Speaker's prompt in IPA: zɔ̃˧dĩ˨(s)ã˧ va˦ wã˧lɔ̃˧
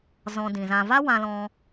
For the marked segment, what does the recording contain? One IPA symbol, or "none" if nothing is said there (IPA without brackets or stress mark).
z